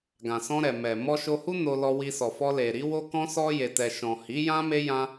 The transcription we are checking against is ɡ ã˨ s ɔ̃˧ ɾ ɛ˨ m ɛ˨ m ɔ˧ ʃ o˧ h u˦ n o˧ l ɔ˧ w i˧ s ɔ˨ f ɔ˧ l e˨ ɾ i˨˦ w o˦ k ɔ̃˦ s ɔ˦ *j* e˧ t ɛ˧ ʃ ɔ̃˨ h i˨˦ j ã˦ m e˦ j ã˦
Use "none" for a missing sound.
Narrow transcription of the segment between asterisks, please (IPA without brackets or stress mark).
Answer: j